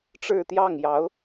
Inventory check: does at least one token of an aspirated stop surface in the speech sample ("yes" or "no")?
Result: no